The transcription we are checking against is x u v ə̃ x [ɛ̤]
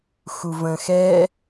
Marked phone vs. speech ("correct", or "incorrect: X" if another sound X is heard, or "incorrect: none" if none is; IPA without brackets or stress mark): incorrect: ɛ